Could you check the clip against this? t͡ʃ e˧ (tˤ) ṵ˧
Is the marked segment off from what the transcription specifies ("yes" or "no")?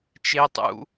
no